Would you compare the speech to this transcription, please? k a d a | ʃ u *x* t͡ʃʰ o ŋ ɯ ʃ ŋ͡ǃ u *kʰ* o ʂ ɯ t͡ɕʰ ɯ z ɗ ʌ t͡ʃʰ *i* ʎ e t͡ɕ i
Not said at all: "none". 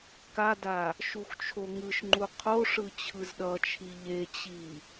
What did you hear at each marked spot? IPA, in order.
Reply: x, qʰ, i

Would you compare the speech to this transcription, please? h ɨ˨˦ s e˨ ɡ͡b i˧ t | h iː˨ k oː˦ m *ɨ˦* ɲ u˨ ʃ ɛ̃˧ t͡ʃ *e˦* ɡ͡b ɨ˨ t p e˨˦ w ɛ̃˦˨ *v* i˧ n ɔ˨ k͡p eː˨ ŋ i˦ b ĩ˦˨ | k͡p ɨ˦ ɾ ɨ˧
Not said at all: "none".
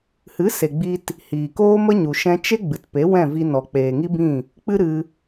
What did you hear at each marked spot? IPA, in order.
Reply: ə˦, e˦, v

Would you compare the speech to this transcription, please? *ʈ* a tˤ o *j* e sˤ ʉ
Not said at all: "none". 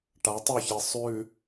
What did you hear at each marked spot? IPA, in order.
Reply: ʈ, ç

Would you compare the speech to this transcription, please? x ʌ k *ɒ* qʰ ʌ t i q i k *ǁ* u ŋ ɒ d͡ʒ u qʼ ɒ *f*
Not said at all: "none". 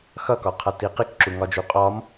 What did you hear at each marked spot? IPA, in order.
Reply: ɒ, ǁ, m

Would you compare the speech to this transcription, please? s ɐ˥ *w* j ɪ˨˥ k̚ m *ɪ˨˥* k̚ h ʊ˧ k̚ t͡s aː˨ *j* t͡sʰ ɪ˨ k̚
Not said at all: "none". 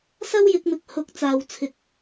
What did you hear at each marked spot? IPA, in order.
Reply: w, ɪ˨˥, w

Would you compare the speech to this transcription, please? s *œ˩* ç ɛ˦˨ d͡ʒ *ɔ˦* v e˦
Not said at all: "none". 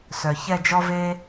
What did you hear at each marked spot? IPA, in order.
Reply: œ˩, ɔ˦

